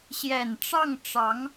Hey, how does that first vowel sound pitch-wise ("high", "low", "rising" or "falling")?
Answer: low